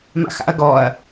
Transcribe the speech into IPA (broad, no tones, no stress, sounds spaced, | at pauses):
m a̰ x a̰ ɐ̯ ɡ ɔ ɐ̯